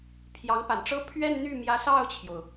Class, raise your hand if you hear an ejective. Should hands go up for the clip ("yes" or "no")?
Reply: no